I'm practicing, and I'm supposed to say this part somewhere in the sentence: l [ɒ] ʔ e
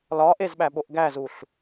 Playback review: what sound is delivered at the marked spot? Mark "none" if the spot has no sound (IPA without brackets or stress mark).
ɒ